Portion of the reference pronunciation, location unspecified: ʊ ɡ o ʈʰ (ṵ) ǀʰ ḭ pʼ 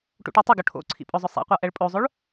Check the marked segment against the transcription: incorrect: o̰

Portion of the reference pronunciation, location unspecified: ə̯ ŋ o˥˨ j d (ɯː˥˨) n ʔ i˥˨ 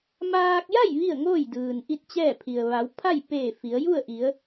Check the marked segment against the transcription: incorrect: ɯː˩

